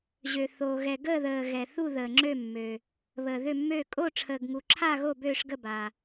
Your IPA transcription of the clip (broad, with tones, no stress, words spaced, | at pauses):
ʑø˨θoː˨ɣɛ˨ ɡəː˥˨ ðəː˨ ɣɛ˨ θu˥˨ ðəː˨ŋ͡ǁø˥˨mːø˨ | βəː˨ðø˥˨mːøː˥˨ kʼo˥˨ʈ͡ʂʰəː˨ɡŋu˨ǁʰa˥˨ ɣo˥˨bøː˥˨ʂɡə˥˨ba˨